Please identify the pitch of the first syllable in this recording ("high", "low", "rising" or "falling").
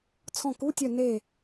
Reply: falling